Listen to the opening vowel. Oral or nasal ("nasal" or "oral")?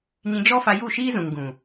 nasal